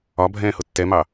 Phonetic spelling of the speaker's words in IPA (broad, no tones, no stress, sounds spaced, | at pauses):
ɒ bʱ ɛ̃ː h ʊ tː ɛ m ɑ